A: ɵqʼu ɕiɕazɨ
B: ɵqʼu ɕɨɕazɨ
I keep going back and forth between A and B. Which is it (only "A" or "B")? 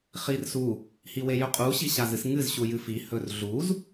A